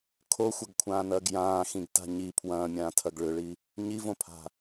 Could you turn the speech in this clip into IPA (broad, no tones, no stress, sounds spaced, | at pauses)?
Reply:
kʰ o xʷ ɐ ɡ kʷʰ ãː n ɐː ɡ j ãː x ĩ ɡ t a̤ ɲ i pʰ w ɐ̃ː mʲ ãː tʰ ɐ ɡ ɭ ʏ ɭ i | ɲ i v õ pʰ a̤